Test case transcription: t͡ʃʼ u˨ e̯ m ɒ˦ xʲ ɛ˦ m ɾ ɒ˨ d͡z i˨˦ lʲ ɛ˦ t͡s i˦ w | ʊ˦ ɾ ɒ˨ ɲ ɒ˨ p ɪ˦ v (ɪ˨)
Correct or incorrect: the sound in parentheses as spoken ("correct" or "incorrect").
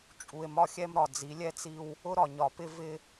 incorrect